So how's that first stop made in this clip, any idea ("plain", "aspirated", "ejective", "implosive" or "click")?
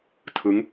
aspirated